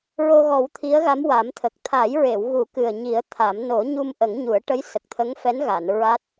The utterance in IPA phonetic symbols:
ɹ o˧ ɣ ɔ˨˩˦ w t̪ʰ i˧˥ ə̯ ɣ a˧˥ m w a˨˩˦ m t̪ʰ ə˨˩ k̚ t̪ʰ a˨˩˦ j ɹ e˨˩˨ w ɣ u˨˩˦ k ɨ˨˩ ə̯ ɲ i˨˩˦ ə̯ t̪ʰ a˨˩˦ m n o˨˩˦ ɲ u˧ m ʔ ə˨˩˦ ŋ ɲ u˨˩˦ ə̯ ʈ ə˧˥ j s ə˨˩ k̚ t̪ʰ ə˧˥ ŋ f ɛ˧˥ n ɣ a˨˩˨ n ɹ a˦˥ t̚

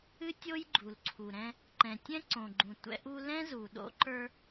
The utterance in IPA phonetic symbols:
ɨ˦ tʲ o˦ j ɡ͡ǃ u˨ l ǀʰ u˨ ɾ ɛ̃˦ | ǃ ɛ̃˨ tʲ ɛ̃˦ ǀ õ˨ ɡ͡ǃ ũ˨ tʷ ɛ̰˦ ʔ u˦ l ɛ̃˦ z u˨ ɗ o̰˦ ǃ ə˞˦

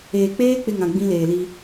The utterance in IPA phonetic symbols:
eː˨ k͡p eː˦ k͡p ɪ˦ ŋ ã˨ ɡ͡b ĩ˦ l eː˨ l i˦

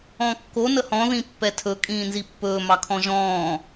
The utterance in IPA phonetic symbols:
ɔ̃ kː o n ə h ɔ̃ ð ĩ pː ɛ tʰ ɵ kʼ ĩː n z i pː ɵː m ɑ kʰ ɔ̃ ʒ ɔ̃ː

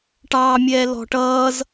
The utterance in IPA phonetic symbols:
ʈ ɑ mʲ ɛ l ɔ̤ ʈ ʌː z

